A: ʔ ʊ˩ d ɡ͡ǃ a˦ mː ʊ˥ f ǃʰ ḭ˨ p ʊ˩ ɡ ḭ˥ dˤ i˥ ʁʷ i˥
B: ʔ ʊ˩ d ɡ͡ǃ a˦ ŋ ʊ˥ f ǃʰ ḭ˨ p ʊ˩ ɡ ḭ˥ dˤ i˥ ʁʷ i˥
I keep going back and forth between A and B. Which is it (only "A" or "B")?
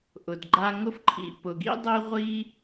B